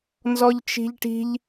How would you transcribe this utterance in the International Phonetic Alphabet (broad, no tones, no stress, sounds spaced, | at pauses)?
n z ɔ ʎ t͡ʃ i̤ ʎ ʈ i̤ ʎ